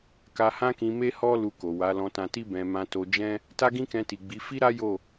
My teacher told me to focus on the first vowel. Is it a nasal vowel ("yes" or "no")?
no